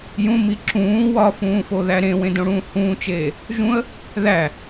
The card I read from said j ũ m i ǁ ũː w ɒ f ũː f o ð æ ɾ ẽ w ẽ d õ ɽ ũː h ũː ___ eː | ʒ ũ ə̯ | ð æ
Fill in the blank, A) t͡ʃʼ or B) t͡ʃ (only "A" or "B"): B